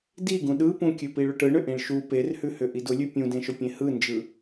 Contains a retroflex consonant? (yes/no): yes